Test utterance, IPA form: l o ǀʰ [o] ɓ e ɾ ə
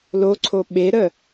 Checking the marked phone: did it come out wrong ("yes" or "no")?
no